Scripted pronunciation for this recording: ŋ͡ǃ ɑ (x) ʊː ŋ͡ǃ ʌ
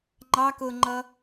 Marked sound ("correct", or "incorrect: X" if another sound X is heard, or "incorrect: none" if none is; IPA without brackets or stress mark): incorrect: k